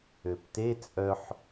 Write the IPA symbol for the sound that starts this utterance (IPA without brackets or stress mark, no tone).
ø